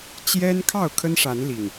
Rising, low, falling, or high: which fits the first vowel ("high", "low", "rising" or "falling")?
high